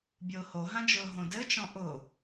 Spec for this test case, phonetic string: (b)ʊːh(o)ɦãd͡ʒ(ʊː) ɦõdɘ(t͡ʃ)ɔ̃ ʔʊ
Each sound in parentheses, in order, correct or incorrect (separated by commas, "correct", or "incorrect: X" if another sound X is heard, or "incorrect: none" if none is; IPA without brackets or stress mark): incorrect: bʲ, correct, correct, correct